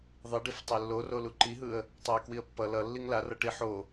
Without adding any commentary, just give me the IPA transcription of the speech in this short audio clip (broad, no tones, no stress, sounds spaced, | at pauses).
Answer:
ðˤ i ɖ i f tˤ e lː o r o l u ǃ i ɦ ɯ ə̯ | tˤ ɛ ɪ̯ k w i ə̯ pː ʌ l ʌ lː i ŋ l a r ʌ ʈ i ħ o